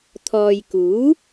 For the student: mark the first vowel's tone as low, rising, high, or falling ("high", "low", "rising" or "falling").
low